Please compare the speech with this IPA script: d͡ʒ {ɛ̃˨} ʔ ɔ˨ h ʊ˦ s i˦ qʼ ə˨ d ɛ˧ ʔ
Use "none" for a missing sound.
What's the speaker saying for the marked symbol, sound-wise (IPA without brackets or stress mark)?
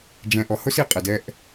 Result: ɛ̃˨